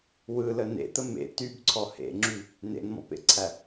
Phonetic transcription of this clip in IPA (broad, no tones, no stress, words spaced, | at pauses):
wɯlə nḛt̪ə mḛ tybǀʰɔ hḛŋ͡ǁy | nḛnmɔ̰pḛǀʰæ